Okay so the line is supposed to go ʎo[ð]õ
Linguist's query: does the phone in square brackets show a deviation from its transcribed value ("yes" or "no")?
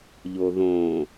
no